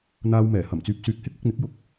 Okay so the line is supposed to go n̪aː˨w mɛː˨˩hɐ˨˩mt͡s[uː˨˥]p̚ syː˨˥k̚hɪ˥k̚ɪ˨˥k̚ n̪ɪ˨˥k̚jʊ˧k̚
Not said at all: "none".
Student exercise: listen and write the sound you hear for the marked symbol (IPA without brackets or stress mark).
yː˨˥